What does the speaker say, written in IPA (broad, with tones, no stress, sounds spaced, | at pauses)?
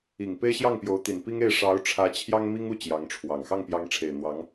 i˨˩ ŋ p e˥ ɪ̯ ɕ j ɑ˥˩ ŋ p j o˧˥ ʊ̯ t̪ i˨˩ n p i˥ ŋ e˥˩ ɪ̯ ʂ ɑ˧˥ ʊ̯ ʈ͡ʂʰ ä˧˥ t͡ɕʰ j ɑ˥ ŋ m i˥ ŋ u˥˩ t͡ɕ j ɑ˧˥ ŋ ʈ͡ʂʰ w ɑ˨˩ ŋ x ɑ˥˩ ŋ p j ɑ˧˥ ŋ ʈ͡ʂʰ e˨˩ ɪ̯ n̪ w ɑ˧˥ ŋ